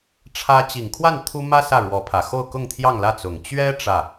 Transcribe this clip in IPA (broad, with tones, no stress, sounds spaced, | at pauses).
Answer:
ʈ͡ʂʰ ä˥ t͡ɕ i˨˩ ŋ kʰ w a˥˩ n t̪ʰ u˥ m ä˥ s ä˥˩ ɻ w ɔ˧˥ pʰ ä˨˩ x o˥˧ ʊ̯ k ʊ˥˧ ŋ t̪ʰ j ɑ˥˧ ŋ l ä˥˩ t͡s ʊ˨˩ ŋ t͡ɕ ɥ ɛ˥ ʈ͡ʂ ä˥˩